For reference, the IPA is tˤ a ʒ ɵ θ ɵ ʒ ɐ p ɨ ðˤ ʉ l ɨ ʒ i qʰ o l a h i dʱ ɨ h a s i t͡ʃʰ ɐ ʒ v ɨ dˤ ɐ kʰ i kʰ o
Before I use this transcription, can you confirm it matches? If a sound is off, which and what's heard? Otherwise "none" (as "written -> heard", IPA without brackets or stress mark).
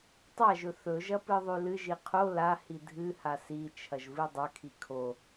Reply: none